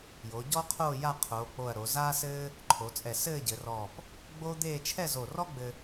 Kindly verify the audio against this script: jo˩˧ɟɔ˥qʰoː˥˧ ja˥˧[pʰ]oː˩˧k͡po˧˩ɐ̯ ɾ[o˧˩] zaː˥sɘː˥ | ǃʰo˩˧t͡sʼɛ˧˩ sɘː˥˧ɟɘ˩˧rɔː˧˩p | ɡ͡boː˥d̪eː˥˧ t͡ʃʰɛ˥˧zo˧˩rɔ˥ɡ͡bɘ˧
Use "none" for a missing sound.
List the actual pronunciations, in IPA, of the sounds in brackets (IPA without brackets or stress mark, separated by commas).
qʰ, o˩˧